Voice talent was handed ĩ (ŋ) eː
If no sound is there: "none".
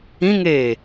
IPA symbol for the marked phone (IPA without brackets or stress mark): ŋ